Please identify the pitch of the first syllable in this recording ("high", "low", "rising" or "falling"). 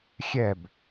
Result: falling